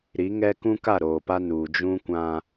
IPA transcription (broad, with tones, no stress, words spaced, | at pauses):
ɾi˨˦ŋɛ˦ kũ˦ka˦˨ ɾoː˨pa˦nuː˨ d͡ʒũ˦kʷã˦